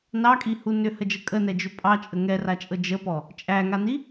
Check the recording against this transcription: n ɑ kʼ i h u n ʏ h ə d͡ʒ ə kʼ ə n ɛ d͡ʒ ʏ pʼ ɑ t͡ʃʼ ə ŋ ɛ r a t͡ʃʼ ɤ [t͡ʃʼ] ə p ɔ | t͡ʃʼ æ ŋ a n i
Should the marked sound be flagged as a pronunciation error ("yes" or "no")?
yes